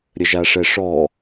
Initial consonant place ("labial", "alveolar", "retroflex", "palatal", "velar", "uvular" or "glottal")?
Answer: alveolar